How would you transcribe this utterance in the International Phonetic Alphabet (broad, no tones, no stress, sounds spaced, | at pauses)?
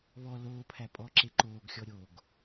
β ɔ l oː pʰ æ pʼ ɔ ǁ e ǃ oː ɡ xʲ ɔ ɾʲ o ɡ